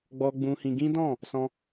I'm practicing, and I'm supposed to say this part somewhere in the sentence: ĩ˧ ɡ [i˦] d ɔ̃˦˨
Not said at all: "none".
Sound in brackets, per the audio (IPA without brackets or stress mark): ĩ˦